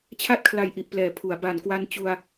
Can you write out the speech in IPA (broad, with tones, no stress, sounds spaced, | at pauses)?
t͡ɕʰ a˥˩ t̚ kʰ l a˨˩ j ʔ i˨˩ ʔ p l ɛː˩˦ pʰ u˩˦ a̯ b a˩˦ n k w a˧ n t͡ɕ u˧ a̯